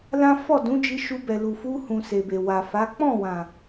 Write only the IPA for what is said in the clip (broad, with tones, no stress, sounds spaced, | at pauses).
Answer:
l ã˦ f ɔ˦˨ d ũ˨˦ d͡ʒ i˧ ʃ u˧ b ɛ˨ l u˨ f u˧ h ũ˨ s e˨ b e˨ w a˨ f a˨˦ k͡p ɔ̃˦˨ w ã˨